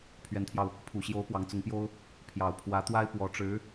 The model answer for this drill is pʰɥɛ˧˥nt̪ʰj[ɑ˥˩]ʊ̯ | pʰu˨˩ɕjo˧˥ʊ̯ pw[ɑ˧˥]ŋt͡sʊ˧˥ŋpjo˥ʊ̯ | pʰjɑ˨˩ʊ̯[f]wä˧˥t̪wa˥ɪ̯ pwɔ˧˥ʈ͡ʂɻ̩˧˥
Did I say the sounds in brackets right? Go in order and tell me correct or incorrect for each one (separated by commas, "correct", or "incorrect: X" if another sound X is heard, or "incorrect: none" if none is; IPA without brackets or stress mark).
incorrect: ɑ˧, correct, incorrect: pʰ